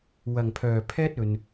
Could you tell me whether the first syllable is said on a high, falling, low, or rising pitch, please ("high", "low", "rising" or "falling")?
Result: low